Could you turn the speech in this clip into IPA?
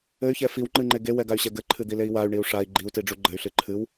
ɘ y̯ ç ɛ f i w ŋ͡ǃ ɨ ŋ͡ǃ e ɡ e w ɛ ɡ a y̯ ɕ ɛ ɡ ɘ ǃʰ ɨ d̪ i l e i̯ w a y̯ ɳ i u̯ ʂ a i̯ ɡ͡ǃ i u̯ t i ɖ͡ʐ u ɡ͡ǃ ɘ y̯ ɬ ɨ ǃʰ ɨ w

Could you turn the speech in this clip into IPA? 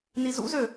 n i z ṵ z ø

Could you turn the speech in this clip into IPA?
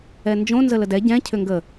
ɛ n d͡ʒ õ n z ə l ə d ɛ ɟ ɛ̃ cʰ ʏ ŋ ɡ ə

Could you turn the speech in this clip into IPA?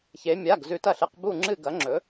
ç e˩˧ mʲ a˩˧˩ ɡ z ʉ˩˧ t ɐ˧˩ ɬ ɨ˩˧˩ q b u˧˩ ŋ͡ǁ ɨ˧˩ ɡ ɐ˩˧ ŋ͡ǁ ɵ˩˧

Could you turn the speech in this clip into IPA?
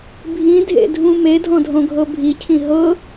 bʱ ĩ dʱ ḛ dʱ ũ m e dʱ ɔ̃ dʱ õ ɡʱ ɤ bʱ i cʰ ĩ ɦ ɤ

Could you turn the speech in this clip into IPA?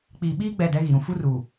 k͡p iː˨ ɓ iː˦ ɡ͡b ɛ˦˨ d ɛ˦ ɣ i˨ ɾ ũ˨ f u˦ r u˨

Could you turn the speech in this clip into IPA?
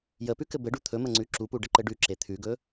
j ə p ʉ k ɘ b ɘ ɖ u t̪ʰ ɵ m ə ŋ͡ǀ ʉ ǁ u p u ɖ ə ǃ ɘ ɖ ʉ ǁ e t̪ʰ ʉ ɡ ɵ

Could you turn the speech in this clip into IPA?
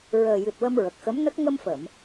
ɹ əː˨˩ j ɨ˨˩ t̚ w ə˧ m ɹ ə˨˩ k̚ x ə˧˥ m n ə˦˥ k̚ ŋ ə˧ m f ə˨˩˨ m

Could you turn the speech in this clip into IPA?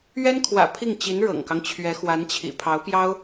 ɥ ɛ˥ n kʰ w ä̰˨˩ pʰ i˥˩ ŋ t͡ɕ i˧˥ n ɻ ɤ̰˨˩ ŋ k ɑ˦ ŋ t͡ɕʰ ɥ ɛ˧˥ x w a˧˥ n t͡ɕʰ ḭ˨˩ pʰ ɑ˧˥ ʊ̯ p j ɑ˥ ʊ̯

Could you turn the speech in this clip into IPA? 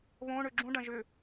β õ ɳ ø ɡ͡ǁ ũ ɖ ɐ̃ ʒ ʏ

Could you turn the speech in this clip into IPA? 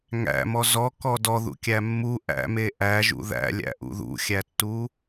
ŋ æ̰ m ɔ z ɔ k ɔ d ɔ ð ṵ kʲ æ mː u ʔ æ̰ m e ʔ æ ʒ ṵ ð æ̰ lʲ æ̰ ʔ ṵ ð ṵ xʲ æ tː u

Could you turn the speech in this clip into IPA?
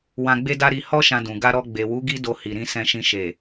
w ã˧ ɡ͡b e˦ d a˦ ɾ i˧ h ɔ˦ ʃ ã˧ d ũ˨ ɡ a˧ ɾ ɔ˧ ɡ͡b e˨ w u˨˦ ɡ i˦ d o˧ h i˨ ɾ ĩ˧ s ɛ̃˧ ʃ ĩ˧ ʃ e˨

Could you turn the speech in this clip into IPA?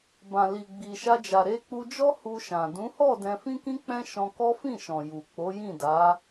b ã˨ l i˨ ɡ͡b i˨ ʃ a˧ d͡ʒ a˨ ɾ e˧ k͡p u˧ d͡ʒ ɔ˦ h u˧ ʃ ã˨ d ũ˨˦ h ɔ˦˨ d ɛ̃˧ f ĩ˦ k ĩ˦ k͡p ɛ̃˦ ʃ ɔ̃˧ k ɔ˦ f ĩ˦˨ ʃ ɔ̃˨ j u˨ k͡p o˨˦ j ĩ˦˨ d a˨˦

